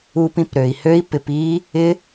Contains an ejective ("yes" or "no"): no